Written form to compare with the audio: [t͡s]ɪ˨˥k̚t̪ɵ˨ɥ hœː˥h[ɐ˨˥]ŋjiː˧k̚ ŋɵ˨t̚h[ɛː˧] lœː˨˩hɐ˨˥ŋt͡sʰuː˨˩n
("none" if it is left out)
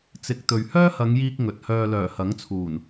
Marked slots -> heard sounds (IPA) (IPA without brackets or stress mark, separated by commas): t͡s, ɐ˨˧, œː˧